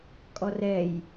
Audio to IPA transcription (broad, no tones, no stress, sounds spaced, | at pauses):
kʼ ɔ r ɛ j